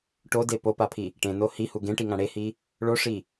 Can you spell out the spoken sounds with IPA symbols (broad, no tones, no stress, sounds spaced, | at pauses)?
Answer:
ʈ o d e p o p a pʰ i | ʈ ẽ n o h i h u ɡ ẽ ʈ i ŋ ã ɽ e h i | ɭ o ʂ i